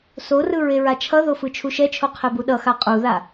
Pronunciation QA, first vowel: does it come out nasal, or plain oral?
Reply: oral